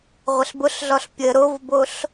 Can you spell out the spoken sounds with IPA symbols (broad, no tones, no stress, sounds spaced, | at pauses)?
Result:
ʁʷ ə ɬ b ʊ ɬ ɮ ɔ ɬ pʲ ə ɾ o v b o ɬ